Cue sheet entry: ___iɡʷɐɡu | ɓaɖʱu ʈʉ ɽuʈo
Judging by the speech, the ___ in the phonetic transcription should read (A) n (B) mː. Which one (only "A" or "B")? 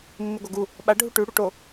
B